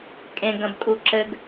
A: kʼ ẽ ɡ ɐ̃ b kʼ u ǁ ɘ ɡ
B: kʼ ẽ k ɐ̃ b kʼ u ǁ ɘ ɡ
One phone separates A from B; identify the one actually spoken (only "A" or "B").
A